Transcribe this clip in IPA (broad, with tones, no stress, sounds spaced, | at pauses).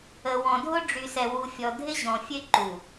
ə˨ w ɔ̃˨ dʱ ʊ˦ ɖ͡ʐ y˨ s ɛ˨ w u˨ fʲ ɔ˨ dʱ ɪ˦ ʑ ɔ̃˨ fʲ ø˦ ǃ u˨